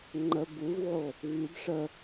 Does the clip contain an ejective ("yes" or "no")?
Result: no